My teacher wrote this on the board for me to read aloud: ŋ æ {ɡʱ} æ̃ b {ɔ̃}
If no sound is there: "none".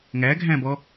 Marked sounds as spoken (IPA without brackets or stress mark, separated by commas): ɡʱ, ɔ